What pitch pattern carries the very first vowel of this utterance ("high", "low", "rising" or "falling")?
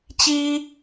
high